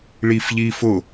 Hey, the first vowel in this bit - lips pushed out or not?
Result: no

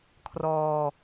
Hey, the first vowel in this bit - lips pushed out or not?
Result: yes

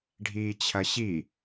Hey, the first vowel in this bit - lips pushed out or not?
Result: no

